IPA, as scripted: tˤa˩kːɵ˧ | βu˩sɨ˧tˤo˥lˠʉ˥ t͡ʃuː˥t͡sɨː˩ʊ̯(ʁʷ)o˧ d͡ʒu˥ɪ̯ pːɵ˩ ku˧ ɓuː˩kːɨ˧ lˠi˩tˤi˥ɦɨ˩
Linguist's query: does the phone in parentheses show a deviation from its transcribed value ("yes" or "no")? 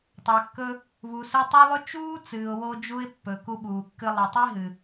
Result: yes